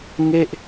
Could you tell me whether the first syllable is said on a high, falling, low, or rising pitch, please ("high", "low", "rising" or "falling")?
falling